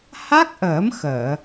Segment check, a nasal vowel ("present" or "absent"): absent